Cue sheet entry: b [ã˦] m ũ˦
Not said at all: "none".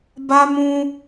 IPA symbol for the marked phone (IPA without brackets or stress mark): a˦